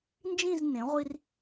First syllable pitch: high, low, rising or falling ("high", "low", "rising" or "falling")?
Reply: falling